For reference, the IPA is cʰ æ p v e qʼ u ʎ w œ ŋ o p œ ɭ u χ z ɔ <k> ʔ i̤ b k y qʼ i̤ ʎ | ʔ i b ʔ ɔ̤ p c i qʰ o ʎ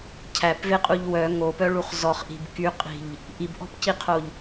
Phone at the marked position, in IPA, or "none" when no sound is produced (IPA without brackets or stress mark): χ